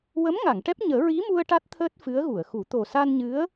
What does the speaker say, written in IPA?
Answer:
wə˧˥m ŋa˨˩˨ŋʈɛ˦˥p̚ ɲəː˨˩˦ ɹi˧˥mu˧ə̯ ʈa˦˥t̚t̪ʰəː˦˥t̚ fɨ˧˥ə̯ɣu˨˩˨ə̯xu˨˩˦ t̪o˨˩sa˧nɲɨ˧˥ə̯

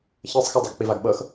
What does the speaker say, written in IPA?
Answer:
çɤsˤxɤ dˤeɡk͡pivaɡɓɤx

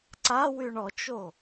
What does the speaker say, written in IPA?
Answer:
ǀawyɳ ɔt͡ʃo

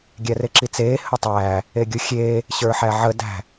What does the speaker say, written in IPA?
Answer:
ɡʲæreǁit͡seː hətˤæː | eɡʲuxʲeː | ɕə˞ħæʕə dæ̤

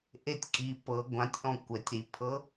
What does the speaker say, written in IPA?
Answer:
ʔetʲkʼi pɤ ɡʷãtʲʔɔ̃ kʷɛtʲ ɾipʰɤ

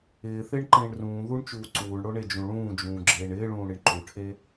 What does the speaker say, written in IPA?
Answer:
ɪːθɪːɳǃẽːɳ rũː ðuɳt͡ʃuː ǀuːɳɽoɳed͡ʒũ ɭũːd͡ʒũːɡ͡ǁeːɳ ɪːɭũːɽɪɳ ǃuʈʰe

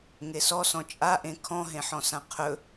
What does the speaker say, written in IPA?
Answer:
ŋesɔsɔ̃ t͡ʃʼaʔẽ kʰɔ̃ɦẽħɔ̃sã qʰɵ

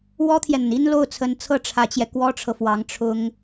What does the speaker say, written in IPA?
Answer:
wɔ˥t̪ʰjɛ˨n̪ə˩n i˥n lo˥˩ʊ̯t͡sʰə˧˥nt͡sʰɤ˥˩ ʈ͡ʂʰä˧˥t͡ɕjɛ˧ kwɔ˥ʈ͡ʂʰɤ˨fwɑ˧˥ŋ ʈ͡ʂʰʊ˥ŋ

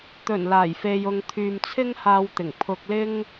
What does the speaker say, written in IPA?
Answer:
t̪ɵ˨˩n laː˨˩jfe˨jʊ˨ŋt̪ʰyː˨m t͡sʰɪ˥ŋhaː˧wt̪ɪ˨˩ŋ pʰʊ˧k̚ lɪ˥ŋ

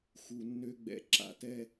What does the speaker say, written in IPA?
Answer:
xu˨nːø˧ɡ͡bɛ̰˨ ǁa̰˨tɛ˧

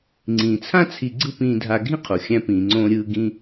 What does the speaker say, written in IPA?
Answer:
ŋ͡ǀĩː˩t͡sʰã˥ t͡sʰi˧ ɡ͡ǀɯ˥pĩː˧dʱa˧ ɡʱĩ˥qʰo˩ xʲæ̃˧ pĩː˩ŋ͡ǀõː˧ ɾʲɯː˧ ɡĩ˥

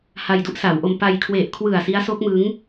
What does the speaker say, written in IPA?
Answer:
ha˧jdu˥˩ʔsa˩˦wʔo˧m pa˧j kʰwe˨˩ʔkʰwɯ˨˩a̯ si˦˥a̯so˦˥k̚mɯ˦˥ŋ

